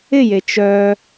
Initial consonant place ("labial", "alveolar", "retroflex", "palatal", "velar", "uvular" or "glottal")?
palatal